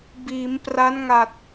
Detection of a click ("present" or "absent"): absent